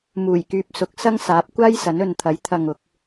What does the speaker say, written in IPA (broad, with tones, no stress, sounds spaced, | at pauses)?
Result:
m uː˨˩ j k yː˨ p̚ s ʊ˨˥ k̚ s ɐ˥ ŋ s aː˨˥ p̚ kʷ aː˥ j s ɐ˨˥ n ɵ˨ n t̪ʰ ɐ˨˥ j t̪ʰ ɐ˨ ŋ ʊ˨˥ k̚